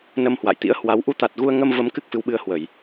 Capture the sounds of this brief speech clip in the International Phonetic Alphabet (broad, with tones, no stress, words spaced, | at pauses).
nə˧mhwa̰˧˨jt̪ḭ˧˥ə̯hwa˨˦w ʔu˨˦t̪a˨˩t̚ ɣu˧ə̯ŋə˧mvə˨˦m kɨ˦˥k̚fɨ˨˦wɓɨ˧ə̯hwə˧˩˨j